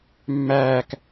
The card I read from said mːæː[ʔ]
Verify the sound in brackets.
incorrect: k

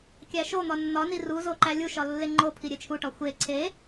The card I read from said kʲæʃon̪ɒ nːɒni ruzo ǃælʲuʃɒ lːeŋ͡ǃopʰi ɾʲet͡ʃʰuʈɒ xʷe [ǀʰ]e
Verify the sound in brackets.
correct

